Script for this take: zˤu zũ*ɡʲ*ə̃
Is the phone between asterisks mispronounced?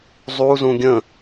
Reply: no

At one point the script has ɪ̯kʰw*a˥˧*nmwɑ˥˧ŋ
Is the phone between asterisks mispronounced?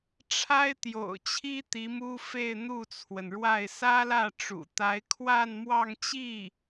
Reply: no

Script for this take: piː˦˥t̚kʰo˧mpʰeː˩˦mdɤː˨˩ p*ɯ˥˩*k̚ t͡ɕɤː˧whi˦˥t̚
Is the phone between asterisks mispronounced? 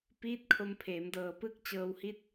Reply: no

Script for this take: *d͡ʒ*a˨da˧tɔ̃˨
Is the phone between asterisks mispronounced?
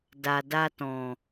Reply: yes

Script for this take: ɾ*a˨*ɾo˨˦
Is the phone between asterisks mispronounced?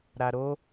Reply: no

